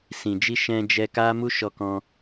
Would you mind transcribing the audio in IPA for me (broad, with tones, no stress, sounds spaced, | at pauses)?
s ĩ˨ d͡ʒ i˧ ʃ ɛ̃˧ d͡ʒ ɛ˧ k a˦ m u˦ ʃ ɔ˧ k ɔ̃˧